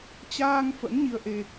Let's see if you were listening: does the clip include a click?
no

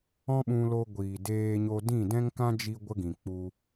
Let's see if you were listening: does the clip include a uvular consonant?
no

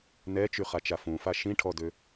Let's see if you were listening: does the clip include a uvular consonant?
yes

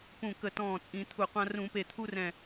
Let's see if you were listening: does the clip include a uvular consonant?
yes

